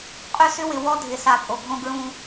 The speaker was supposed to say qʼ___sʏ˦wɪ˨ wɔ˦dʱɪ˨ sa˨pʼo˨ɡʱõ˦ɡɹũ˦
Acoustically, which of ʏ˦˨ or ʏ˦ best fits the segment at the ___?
ʏ˦˨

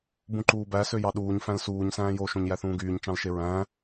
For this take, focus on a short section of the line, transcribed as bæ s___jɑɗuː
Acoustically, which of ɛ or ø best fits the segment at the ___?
ø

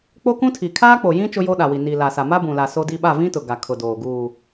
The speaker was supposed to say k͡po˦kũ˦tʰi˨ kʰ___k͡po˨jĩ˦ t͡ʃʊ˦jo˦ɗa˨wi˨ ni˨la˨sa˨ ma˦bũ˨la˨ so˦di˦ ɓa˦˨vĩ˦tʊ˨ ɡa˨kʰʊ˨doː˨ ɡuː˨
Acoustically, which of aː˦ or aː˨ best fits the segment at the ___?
aː˦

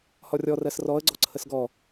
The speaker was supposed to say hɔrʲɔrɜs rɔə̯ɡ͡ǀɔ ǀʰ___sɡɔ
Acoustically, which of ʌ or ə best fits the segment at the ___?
ə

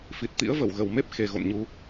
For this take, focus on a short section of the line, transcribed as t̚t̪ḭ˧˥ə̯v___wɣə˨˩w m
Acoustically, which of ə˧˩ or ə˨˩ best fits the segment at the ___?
ə˧˩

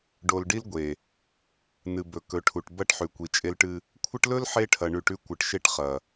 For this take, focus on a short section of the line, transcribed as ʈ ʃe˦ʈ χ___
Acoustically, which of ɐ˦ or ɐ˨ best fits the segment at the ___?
ɐ˨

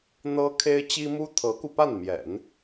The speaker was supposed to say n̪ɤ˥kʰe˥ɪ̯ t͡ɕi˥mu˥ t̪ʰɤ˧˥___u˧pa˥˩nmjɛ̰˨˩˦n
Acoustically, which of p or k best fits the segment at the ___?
k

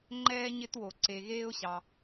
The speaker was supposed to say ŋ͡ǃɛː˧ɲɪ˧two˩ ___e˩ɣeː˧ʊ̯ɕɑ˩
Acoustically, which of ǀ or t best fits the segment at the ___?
ǀ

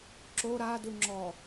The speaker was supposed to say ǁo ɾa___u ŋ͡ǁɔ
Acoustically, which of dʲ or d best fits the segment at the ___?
d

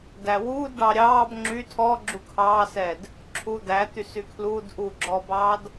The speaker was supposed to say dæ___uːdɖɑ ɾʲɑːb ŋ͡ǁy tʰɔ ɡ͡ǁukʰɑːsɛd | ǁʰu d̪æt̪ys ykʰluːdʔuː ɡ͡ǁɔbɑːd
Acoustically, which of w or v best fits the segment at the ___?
w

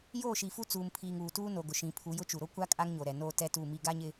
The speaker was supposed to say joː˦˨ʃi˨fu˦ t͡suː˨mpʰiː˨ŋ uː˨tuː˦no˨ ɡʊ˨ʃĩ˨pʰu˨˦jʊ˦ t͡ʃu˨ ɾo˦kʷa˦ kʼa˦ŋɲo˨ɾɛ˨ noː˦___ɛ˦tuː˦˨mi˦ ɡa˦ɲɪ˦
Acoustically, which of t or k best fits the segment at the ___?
t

